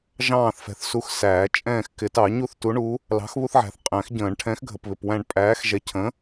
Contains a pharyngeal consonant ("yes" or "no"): yes